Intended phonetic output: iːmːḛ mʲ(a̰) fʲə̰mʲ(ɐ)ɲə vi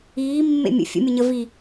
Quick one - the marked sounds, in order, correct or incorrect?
incorrect: ə̰, incorrect: ə

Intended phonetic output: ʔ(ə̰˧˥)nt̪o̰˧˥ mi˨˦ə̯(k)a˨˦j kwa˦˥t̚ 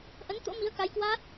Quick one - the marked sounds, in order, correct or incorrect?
incorrect: ə˨˦, correct

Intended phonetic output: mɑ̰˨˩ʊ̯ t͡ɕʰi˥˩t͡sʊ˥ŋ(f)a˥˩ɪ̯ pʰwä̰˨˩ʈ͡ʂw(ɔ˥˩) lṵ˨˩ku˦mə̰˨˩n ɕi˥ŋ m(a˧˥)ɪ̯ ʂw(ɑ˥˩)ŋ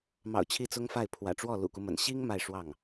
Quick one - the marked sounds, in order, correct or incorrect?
correct, correct, incorrect: a˥˧, correct

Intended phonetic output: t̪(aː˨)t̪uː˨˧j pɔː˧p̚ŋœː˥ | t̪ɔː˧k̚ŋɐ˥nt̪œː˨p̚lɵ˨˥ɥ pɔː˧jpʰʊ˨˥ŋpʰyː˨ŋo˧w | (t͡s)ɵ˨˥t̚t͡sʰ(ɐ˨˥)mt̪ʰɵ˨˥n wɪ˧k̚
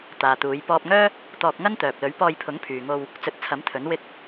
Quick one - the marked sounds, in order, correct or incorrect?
correct, correct, correct

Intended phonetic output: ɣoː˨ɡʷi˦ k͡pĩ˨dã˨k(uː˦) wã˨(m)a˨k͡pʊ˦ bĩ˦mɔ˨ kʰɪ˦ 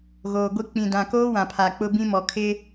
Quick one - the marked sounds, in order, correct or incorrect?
incorrect: oː˦, incorrect: pʰ

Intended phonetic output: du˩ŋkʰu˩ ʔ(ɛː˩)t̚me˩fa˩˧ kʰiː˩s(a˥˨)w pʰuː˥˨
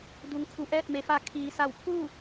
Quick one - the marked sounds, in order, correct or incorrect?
incorrect: ɛː˧˩, incorrect: a˧˩

